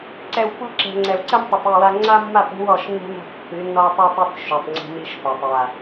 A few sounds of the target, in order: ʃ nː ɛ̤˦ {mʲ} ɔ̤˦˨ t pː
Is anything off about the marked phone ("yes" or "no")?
yes